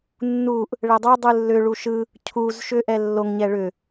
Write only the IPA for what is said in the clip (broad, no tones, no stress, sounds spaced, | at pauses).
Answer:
nː u ʔ | ɭ ɛ dˤ o dˤ ɯ lː ʏ ɭ u ʃ ɯ | cʰ u z ʃ ʏ ʔ ɛ lː o ŋ ɲ ɛ ɭ ʏ